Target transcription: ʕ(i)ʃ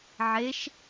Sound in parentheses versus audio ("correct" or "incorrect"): incorrect